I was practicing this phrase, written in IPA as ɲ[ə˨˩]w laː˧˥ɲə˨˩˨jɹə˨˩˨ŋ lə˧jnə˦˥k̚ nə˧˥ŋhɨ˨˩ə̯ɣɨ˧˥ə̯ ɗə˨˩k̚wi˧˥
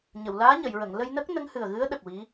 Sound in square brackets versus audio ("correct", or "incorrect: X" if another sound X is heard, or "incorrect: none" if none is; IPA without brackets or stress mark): incorrect: ə˨˩˨